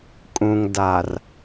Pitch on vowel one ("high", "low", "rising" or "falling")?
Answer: low